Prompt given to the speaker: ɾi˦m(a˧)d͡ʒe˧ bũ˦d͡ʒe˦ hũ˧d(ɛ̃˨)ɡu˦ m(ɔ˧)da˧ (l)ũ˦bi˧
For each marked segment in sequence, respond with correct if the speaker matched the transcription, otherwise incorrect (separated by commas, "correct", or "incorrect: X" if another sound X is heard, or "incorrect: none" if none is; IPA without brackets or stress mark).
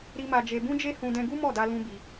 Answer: correct, incorrect: ɛ̃˧, incorrect: ɔ˦˨, correct